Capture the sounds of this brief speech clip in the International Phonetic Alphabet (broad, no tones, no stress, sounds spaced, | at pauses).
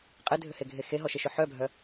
qʼ e dʱ ʏ h e ɡʱ e x e ɦ ɔ ʃ e ʃ ʏ ħ œ bʱ œ